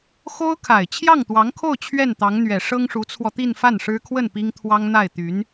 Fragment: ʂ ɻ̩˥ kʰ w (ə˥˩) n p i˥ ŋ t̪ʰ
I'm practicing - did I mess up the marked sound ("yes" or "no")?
no